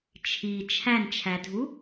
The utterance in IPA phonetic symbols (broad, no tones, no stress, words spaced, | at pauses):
t͡ʃʰi t͡ʃʰænt͡ʃʰædʱu